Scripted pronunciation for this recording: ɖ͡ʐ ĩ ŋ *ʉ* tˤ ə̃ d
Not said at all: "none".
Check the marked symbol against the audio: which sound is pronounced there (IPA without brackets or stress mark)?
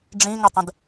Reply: ə